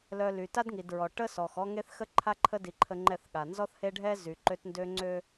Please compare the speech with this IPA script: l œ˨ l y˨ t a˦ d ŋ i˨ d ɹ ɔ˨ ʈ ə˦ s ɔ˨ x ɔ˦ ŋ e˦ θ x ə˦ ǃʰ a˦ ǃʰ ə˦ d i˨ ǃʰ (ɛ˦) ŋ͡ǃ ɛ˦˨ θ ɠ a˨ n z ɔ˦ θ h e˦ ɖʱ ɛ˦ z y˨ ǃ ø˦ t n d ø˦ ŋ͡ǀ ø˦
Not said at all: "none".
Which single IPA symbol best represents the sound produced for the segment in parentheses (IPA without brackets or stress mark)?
ə˦